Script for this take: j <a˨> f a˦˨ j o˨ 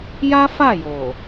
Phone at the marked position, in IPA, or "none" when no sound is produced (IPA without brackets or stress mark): a˦